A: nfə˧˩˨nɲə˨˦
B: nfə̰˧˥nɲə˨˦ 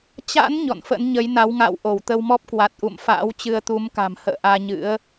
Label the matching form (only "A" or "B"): B